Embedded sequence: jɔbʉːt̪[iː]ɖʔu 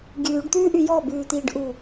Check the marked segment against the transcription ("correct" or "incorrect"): correct